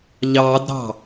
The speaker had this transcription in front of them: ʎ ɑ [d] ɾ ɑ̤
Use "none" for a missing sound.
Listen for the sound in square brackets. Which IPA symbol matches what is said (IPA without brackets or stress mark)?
d